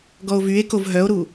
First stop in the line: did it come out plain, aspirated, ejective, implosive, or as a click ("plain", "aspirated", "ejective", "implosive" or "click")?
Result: plain